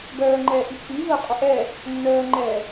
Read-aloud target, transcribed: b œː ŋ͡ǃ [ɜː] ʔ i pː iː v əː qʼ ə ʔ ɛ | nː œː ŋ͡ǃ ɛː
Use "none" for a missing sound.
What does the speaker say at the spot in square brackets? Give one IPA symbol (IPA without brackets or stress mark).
ɛː